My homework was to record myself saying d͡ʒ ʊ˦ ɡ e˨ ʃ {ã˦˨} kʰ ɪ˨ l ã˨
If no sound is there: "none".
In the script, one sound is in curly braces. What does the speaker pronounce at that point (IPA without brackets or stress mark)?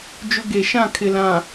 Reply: ã˦˨